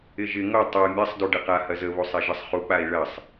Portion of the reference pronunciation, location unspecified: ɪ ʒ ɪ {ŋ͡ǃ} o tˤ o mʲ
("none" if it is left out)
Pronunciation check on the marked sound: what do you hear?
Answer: ŋ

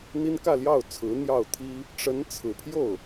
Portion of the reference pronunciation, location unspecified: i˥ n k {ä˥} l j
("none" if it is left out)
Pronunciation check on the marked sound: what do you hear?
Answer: ä˥˧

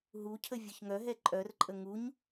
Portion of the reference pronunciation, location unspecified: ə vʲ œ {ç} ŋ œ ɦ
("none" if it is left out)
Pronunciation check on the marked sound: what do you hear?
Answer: ç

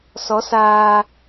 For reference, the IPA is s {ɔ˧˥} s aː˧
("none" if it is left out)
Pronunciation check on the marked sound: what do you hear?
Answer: ɔ˧˥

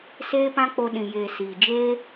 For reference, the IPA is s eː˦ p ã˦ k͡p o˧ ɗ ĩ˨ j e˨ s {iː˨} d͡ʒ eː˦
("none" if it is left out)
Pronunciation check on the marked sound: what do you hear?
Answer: iː˨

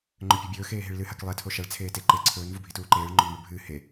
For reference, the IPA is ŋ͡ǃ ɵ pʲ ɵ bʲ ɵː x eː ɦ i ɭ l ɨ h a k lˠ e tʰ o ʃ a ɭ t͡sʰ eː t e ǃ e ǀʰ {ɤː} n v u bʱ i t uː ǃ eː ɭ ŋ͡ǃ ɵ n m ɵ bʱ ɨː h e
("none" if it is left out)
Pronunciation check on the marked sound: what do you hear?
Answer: ɵː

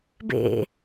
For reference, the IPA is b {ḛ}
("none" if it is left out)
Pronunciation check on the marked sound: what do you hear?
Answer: ḛ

